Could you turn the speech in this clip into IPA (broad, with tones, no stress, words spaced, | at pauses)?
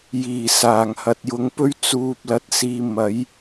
jiː˨˩saː˨˩ŋhɐ˨t̚ jʊ˨˧ŋpɵ˥ɥ t͡suː˧p̚lɐ˧t̚siː˧ mɐ˨˥j